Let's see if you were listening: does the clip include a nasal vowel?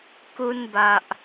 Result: no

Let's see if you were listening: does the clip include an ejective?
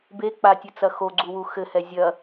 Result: no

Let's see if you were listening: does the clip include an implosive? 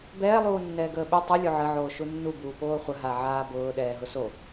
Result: yes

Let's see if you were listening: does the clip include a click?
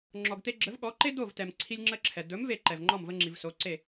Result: yes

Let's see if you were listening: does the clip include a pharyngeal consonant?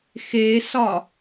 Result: no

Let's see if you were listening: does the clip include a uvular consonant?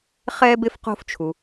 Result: yes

